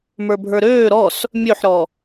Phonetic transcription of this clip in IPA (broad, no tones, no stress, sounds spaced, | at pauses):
m ə˞ bʱ ə˞ ɾ øː ɾ ɔ s | mʲ ø ħ ɾ ɔ